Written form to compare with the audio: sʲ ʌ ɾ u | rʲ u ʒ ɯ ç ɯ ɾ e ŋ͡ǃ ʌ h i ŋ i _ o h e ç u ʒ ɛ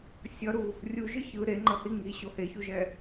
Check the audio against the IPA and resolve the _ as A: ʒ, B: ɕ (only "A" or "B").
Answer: B